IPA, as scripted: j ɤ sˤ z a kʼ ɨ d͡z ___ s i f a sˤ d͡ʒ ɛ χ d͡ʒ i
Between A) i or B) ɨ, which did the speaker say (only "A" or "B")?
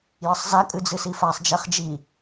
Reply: B